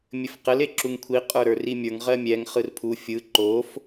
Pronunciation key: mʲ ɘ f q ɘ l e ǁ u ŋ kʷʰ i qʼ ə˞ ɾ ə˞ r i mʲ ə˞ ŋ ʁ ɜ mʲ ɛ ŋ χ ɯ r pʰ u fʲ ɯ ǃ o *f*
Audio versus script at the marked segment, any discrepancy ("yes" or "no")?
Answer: no